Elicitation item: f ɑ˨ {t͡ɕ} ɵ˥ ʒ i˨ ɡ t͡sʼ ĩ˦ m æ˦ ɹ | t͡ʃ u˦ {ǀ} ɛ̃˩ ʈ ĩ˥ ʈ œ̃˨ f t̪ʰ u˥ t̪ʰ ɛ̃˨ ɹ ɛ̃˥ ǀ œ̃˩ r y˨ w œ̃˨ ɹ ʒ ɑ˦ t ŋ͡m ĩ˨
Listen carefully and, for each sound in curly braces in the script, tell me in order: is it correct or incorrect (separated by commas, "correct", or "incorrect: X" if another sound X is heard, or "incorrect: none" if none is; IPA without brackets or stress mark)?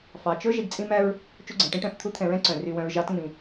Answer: incorrect: t͡ʃ, incorrect: ɡ͡ǀ